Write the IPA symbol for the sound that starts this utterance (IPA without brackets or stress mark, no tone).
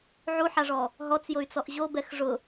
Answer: ʕ